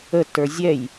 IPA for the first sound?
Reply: ə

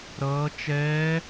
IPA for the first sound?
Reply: ɾ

